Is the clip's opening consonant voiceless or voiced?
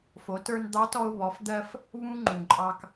voiceless